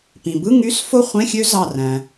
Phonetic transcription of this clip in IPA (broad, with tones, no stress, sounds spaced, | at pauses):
p ĩ˩ b ɯ˧˥˧ ŋ y˧˥˧ s f o˥˨ χʷ ẽ˧˥˧ xʲ ø˦˥ z ɑ˧˩ r æ̃˩